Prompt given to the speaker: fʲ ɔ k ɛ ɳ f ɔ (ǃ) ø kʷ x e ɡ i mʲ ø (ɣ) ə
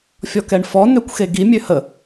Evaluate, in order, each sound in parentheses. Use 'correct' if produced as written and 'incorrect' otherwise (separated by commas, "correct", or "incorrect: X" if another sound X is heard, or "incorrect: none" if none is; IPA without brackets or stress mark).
incorrect: n, incorrect: h